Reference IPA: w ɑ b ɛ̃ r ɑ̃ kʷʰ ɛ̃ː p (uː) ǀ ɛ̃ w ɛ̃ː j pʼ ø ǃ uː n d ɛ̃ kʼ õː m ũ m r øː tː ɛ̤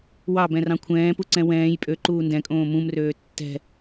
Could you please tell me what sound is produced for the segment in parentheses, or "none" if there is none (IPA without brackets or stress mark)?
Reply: u